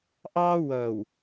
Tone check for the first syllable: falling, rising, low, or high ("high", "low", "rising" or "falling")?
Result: high